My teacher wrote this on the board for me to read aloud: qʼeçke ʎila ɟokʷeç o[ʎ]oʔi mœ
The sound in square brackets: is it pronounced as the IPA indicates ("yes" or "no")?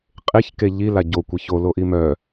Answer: no